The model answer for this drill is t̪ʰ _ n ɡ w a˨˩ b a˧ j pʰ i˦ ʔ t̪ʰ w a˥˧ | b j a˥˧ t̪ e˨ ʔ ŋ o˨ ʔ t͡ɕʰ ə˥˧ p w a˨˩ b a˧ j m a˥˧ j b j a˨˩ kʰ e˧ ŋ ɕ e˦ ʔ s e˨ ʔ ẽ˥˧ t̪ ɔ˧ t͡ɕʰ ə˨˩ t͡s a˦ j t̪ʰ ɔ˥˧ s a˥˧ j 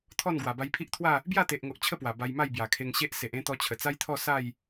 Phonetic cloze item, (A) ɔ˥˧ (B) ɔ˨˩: A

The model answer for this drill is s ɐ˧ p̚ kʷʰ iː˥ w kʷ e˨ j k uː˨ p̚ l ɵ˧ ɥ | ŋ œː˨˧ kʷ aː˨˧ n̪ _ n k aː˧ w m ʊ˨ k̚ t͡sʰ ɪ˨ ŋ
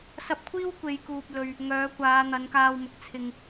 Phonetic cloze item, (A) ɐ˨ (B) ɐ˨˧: B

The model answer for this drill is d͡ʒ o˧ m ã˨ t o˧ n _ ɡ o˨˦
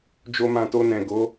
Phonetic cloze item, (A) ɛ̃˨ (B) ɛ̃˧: A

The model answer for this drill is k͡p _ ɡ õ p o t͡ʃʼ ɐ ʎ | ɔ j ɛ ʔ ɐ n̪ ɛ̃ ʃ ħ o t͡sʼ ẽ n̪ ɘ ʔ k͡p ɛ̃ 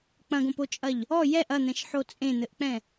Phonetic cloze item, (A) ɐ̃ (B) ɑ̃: A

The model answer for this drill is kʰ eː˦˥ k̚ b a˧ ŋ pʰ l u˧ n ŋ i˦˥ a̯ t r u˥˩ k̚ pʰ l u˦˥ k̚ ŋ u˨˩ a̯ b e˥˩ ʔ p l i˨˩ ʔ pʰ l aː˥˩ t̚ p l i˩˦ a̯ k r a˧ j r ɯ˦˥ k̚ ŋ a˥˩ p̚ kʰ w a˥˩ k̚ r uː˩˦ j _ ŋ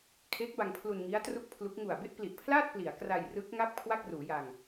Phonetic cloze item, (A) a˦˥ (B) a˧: B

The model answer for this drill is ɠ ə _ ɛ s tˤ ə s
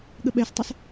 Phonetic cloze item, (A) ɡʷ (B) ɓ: B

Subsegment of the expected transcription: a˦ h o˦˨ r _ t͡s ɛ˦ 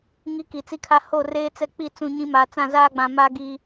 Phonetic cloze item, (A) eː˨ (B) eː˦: B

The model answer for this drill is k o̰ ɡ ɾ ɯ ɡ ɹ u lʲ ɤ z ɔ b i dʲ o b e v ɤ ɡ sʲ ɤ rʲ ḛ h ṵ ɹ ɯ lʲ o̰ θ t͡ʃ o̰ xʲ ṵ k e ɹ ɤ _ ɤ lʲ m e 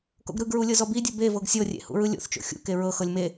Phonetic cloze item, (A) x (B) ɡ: A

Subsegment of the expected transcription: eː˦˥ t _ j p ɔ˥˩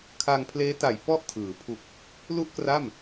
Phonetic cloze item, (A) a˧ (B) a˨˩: B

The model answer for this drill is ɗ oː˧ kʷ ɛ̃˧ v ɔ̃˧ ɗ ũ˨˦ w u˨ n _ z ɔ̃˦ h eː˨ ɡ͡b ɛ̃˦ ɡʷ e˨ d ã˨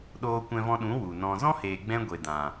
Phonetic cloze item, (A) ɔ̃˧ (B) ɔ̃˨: A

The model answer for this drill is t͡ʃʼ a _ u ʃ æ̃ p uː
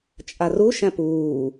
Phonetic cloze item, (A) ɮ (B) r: B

